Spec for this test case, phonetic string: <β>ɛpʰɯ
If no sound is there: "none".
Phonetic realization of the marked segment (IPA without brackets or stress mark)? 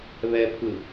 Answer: β